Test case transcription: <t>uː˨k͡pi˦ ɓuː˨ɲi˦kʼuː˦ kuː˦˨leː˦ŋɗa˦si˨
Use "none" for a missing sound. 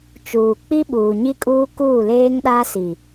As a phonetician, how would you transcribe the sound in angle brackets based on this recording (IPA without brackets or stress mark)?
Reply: t͡ʃ